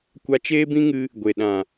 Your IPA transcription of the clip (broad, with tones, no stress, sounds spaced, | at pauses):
kʷ a˧ t͡ʃ eː˦ b ĩ˦ ŋ ɨ˧ | ɡʷ e˨ ɗ ã˨